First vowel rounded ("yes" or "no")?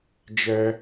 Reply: no